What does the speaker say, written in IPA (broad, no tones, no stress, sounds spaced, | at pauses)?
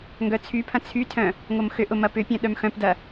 ŋ ɡ œ t͡sʰ y pʰ ɐ̃ t͡sʰ y tʰ œ̃ | ŋ o m x ʏ ʔ ʊ m ɐ p ʏ pʲ œ̃ ɗ œ m x œ̃ p d ɐ